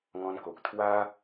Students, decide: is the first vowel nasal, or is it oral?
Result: nasal